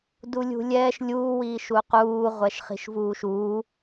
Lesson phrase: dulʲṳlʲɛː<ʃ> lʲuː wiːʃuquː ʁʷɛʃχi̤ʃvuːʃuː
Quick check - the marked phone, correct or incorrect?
correct